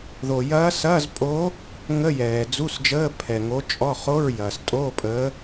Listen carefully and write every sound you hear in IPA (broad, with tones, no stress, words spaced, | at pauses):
ðo˨ jɐː˧˥sɐː˧˥˧zpʼoː˧˥ | ŋə˧˥˧jɛː˨d͡zu˧˥˧sd͡ʒəː˧˥˧ pʰɛ˨ŋo˧˥t͡ʃʼɔ˧˥˧ χo˧˥˧ɹjɐː˨stʼoː˧˥˧ pʼəː˧˥